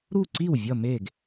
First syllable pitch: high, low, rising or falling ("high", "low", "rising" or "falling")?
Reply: falling